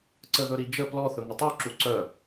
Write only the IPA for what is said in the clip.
ǀəðɵɾid͡ʒə plɔθɵ ŋətˤuǁu ǀœ

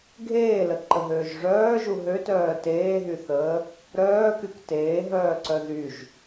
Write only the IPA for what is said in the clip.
ɡʱeːləǃəɦøːʒ ʐœːʒu ɦøtœː teːɦyθəː | ɾœːkyk teːɦœːǀœ ðyʒ

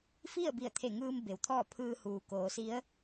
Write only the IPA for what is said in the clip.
fi˥˨ə̯bi˧˩ə̯t̪ʰe˧˩ŋɯː˧m be˩˧wt̪ʰɔː˥˨ pʰɯː˧ huː˩ koː˩˧si˧˥ə̯

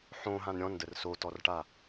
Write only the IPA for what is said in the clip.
ħõɦãn ɾʲɔ̃ndər sotɔrʈa

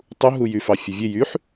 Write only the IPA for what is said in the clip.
tˤuɦujy fɑfʲɛvʲe jyħ

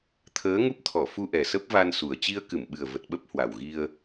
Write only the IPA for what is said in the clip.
t̪ʰəː˨˦ŋu˦˥p̚t̪ʰɔ˧˩ fu˧ʔɛ˨˩ sə˦˥p̚va˧nsu˨˩ə̯ t͡ɕi˧ə̯kɨ˧˩mɓɨ˨˩ə̯ və˨˩t̚ɓə˦˥p̚ hwa˨˩wɣi˧ə̯

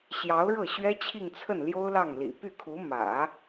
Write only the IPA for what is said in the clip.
ɕjɑ˧˥ʊ̯ɻɤ˥˩ɕɥɛ˥ t͡ɕʰi˥˧ŋt͡sʰə˥˩n ljo˥ʊ̯lɑ˥˩ŋlḭ˨˩ py˥˩kʰu˧˥ mä̰˨˩˦

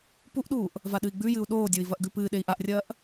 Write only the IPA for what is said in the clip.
puʔɗuːʔ | vaɗɨi̯ɡ͡bʉjɨu̯ ɗoːdʲoi̯ vɐʔɡʉpɨːɗei̯ ʔaʔrʲɐːʔ

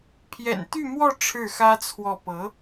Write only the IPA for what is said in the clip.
pʰjɛ̰˨˩n t̪y˥˧mwɔ˥˧ ʈ͡ʂʰɻ̩˥˩xä˥t͡sʰwɔ˥˩ pɤ˧˥

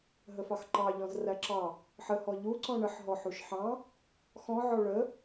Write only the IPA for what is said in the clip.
ɦəfɑxǃɑ ʎɔ̃zræǁɑ | ħəhɔ ʎuǀɔ̃ ɳəħɦɔ ħuʃħɑ̃ | xɔ̃ʕɔ ɭə

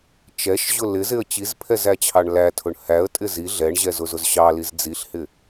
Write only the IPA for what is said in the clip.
t͡ʃɛʃʑʊ lɪzɪə̯ t͡ɕizpʰɛzæt͡ɕʰɑɳ lætʰʊɳ hæə̯tʼɪ zi ɮɛɳʑɛzʊzʊz ɕɑliz d͡ziɬhɪ

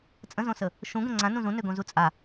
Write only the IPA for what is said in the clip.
t͡sʼə̃zõsə | ʃũɡə̃ ŋ͡ǀãnũ zũnøɡõzu t͡sʼa

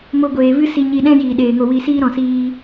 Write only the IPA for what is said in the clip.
mo˧ɡʷeː˨vɨ˦ si˧ɲi˧ ɗɛ̃˦ jiː˨ɗeː˨ŋo˧wi˧ siː˦ɾɔ̃˨siː˧

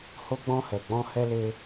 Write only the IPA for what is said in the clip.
ho˧ɡ͡bɔ̃˧hɛ˨ ɡ͡bɔ̃˧hɛ˧le˧

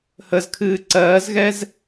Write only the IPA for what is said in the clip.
həzkʰɨː ǀɜːzɣɛz

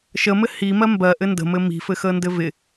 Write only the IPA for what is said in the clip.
ʃəmɘ himɜ mbɜʔɘ ndə̤mɘ mi̤fɘxə ndɘvɪ

